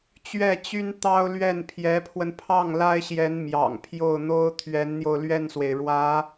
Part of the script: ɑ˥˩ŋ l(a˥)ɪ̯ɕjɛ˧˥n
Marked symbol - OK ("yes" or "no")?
yes